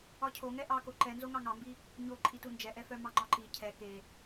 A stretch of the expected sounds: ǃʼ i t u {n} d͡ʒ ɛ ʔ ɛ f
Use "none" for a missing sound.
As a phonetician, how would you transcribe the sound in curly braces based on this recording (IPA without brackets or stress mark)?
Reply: n